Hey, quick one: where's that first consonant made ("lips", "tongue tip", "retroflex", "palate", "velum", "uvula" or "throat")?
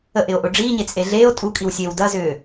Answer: throat